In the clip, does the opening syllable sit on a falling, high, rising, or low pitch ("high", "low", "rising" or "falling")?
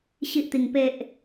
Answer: high